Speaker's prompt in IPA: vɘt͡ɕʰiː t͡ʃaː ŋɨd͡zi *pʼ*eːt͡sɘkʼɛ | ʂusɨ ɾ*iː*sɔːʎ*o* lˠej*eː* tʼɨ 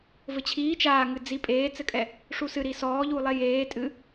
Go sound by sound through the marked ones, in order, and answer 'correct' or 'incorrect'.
correct, incorrect, incorrect, correct

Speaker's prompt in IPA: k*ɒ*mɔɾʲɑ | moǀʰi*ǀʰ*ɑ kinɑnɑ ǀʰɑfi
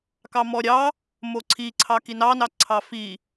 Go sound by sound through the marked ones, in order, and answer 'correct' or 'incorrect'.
incorrect, correct

